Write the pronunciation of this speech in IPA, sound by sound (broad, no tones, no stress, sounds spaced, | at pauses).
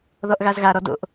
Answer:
ð ɔ ʔ ɣ a z ɣ a ɾ ɔ d o̰ ʔ